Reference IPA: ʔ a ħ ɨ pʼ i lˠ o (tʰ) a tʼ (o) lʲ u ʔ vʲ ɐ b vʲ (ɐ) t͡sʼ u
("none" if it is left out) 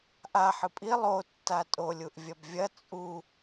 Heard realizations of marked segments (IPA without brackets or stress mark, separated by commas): tː, o, ɐ